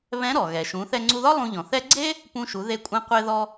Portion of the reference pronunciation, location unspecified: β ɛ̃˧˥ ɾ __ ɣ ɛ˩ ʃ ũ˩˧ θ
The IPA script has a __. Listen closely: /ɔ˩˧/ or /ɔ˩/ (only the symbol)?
ɔ˩